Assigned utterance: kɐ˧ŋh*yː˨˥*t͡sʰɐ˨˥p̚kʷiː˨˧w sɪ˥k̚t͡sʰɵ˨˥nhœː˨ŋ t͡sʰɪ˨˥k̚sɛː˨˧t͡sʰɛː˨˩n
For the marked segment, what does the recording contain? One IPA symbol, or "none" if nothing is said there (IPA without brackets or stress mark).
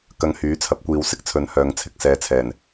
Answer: yː˨˥